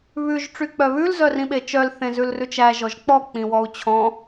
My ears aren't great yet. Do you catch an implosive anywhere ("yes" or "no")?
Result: yes